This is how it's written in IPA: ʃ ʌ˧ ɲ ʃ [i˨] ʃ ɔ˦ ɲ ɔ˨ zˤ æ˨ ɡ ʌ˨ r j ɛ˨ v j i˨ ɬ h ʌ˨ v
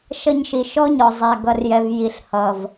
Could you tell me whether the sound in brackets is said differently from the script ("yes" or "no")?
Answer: no